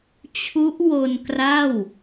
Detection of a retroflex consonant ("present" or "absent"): absent